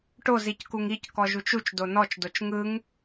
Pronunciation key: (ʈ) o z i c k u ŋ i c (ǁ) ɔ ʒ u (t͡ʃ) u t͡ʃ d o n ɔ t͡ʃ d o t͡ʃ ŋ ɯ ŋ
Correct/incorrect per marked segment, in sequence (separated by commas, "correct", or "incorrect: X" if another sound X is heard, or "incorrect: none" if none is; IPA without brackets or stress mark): correct, incorrect: k, correct